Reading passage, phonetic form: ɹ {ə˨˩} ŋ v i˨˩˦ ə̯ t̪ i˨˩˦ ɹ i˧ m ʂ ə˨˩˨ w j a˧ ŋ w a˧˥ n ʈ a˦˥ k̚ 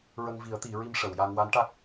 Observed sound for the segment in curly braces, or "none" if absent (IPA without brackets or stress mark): ə˧